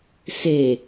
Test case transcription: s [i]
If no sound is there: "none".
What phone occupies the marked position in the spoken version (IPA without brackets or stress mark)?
e